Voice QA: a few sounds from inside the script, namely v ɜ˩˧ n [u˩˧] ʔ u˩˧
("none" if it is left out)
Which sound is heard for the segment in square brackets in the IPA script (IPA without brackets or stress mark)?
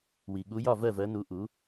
u˩˧